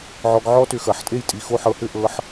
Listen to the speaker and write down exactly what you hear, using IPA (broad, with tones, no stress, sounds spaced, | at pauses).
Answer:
ʕ ɔ˧ ɡ ʕ ɔ˥ t ʏ˧ x ɐ˩˧ ħ tʼ e˥˧ j tʼ i˧˩ x o˥˧ ħ ɤ˧ h ʏ˥˧ ʔ ɤ˧ ħ